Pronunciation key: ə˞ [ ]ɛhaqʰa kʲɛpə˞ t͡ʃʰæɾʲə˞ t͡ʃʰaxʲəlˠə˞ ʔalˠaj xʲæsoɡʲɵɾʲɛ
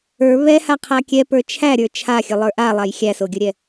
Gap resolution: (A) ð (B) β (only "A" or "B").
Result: B